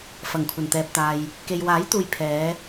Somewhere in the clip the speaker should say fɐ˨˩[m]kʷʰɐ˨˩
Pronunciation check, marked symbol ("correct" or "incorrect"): incorrect